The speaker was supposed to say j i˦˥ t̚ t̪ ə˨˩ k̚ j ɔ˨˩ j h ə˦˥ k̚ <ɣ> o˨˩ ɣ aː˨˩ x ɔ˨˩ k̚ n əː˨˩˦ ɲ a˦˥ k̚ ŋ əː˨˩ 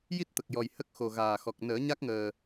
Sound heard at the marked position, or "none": x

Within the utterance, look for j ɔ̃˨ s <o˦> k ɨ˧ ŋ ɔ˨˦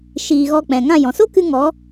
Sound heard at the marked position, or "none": o˦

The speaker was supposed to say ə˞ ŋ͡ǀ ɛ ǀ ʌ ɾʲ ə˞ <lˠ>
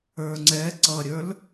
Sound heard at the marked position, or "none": l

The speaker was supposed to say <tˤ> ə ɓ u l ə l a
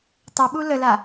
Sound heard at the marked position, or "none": tˤ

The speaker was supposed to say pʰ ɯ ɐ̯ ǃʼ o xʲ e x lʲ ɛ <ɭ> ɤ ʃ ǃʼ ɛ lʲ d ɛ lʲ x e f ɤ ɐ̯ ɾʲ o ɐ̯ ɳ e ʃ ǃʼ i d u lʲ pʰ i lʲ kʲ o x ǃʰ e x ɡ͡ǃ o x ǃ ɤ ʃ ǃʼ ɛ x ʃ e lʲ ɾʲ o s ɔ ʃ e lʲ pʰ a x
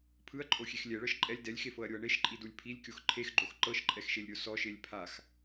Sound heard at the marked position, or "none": ɭ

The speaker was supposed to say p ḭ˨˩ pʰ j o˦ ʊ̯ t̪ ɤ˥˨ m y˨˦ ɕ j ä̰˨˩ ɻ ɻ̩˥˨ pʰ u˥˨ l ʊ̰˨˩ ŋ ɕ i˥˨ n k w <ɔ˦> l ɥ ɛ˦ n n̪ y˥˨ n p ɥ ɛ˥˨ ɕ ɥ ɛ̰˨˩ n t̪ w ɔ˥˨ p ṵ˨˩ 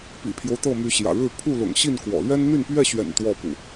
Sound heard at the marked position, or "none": ɔ̰˨˩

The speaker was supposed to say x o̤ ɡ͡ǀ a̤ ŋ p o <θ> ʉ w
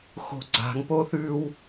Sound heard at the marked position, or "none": θ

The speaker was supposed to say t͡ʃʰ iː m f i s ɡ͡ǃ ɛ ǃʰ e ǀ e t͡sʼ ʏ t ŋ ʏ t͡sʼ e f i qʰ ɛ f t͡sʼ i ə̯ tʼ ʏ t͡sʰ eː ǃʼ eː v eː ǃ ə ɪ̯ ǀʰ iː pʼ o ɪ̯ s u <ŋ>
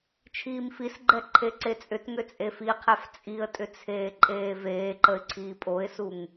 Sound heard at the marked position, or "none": ŋ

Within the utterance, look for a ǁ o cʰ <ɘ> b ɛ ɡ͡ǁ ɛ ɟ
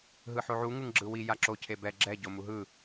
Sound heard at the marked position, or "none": e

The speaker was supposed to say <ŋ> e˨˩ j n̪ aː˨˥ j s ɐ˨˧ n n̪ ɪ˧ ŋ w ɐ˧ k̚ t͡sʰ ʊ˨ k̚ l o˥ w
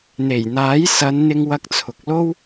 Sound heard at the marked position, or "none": n̪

